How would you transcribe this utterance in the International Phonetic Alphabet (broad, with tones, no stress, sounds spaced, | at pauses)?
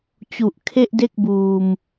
t͡ɕ u˨˩ ʔ kʰ e˥˩ ʔ d e˥˩ k̚ b uː˧ m